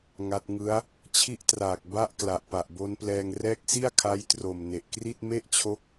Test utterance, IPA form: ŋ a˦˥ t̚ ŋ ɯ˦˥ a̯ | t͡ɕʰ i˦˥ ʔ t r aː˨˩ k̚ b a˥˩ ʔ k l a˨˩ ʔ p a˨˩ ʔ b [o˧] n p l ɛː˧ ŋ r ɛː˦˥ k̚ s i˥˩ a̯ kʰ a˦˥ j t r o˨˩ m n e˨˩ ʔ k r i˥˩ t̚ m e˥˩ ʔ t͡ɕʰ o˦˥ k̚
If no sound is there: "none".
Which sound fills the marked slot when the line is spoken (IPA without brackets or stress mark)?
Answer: o˦˥